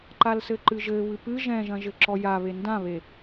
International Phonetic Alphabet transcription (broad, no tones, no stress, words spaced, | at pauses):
ǃalsɘǃɨʒɘ βɨpɨ ʒɛ̃ʒɐ̃ʒɘ ǁɔjaβe ndãβe